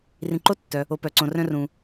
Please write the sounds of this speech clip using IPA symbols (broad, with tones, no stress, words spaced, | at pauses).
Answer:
rĩ˨ǃo˦tːœ˩ | o˨pœ˨ǀõ˨ rœ̃˦rũ˨